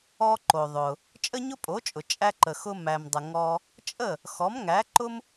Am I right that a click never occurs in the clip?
no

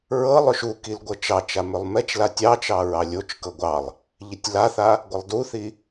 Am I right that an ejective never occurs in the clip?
yes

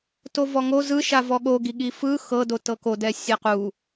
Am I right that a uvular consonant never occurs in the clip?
no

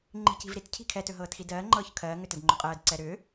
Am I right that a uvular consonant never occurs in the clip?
no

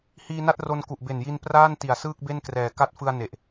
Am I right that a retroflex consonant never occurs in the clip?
yes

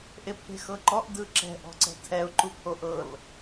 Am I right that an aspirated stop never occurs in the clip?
no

